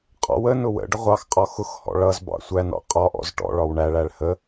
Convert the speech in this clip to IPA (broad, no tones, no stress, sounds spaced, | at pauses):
qʼ ɔ̰ w ə n ʊ w ə̰ ɖ ʌ ʁʷ ɑ x qʼ ɒ x ʊ x h ɔ̰ ɭ ʌ z b ɑ̰ sʷ æ n ɔ̰ qʼ ɒ ʔ ɔ̰ z ʈ ɔ̰ ɭ ɒ w ɳ æ ɭ æ ɭ h ə